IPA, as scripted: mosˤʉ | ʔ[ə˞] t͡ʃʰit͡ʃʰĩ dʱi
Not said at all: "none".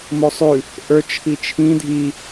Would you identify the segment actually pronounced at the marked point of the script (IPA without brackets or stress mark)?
ə˞